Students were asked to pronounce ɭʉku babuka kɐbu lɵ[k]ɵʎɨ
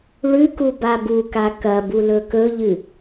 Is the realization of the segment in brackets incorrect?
no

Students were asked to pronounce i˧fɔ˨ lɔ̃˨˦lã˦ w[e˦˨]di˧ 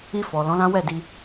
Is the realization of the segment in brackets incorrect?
yes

